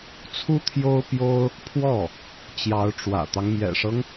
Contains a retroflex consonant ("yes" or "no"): yes